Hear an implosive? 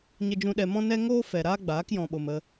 yes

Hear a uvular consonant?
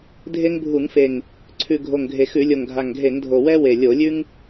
no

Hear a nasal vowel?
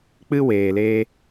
no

